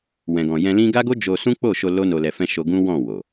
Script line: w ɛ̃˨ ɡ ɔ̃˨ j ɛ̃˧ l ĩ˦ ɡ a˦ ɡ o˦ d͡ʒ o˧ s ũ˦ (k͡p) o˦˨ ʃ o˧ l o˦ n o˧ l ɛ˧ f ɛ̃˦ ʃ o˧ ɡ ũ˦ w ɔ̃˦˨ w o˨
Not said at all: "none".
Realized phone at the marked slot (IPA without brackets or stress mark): k͡p